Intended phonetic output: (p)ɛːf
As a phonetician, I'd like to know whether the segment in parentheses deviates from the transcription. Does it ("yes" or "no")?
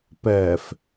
no